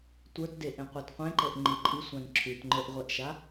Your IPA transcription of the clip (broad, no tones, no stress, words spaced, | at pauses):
tʷə˞tdeʔẽqʷat qʷẽǃɤʔŋ͡ǃi ǃʼisʷãn ǁʰʉtŋ͡ǃə˞ʔʁʷeʔʃa